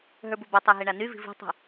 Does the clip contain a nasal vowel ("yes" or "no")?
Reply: no